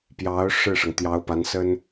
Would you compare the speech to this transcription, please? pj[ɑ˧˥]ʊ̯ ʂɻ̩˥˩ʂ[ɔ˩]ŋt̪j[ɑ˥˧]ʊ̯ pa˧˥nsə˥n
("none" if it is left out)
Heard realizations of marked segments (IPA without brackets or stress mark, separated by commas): ɑ˧˥, ɤ˩, ɑ˧˥